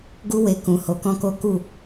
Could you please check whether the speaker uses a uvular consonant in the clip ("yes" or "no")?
no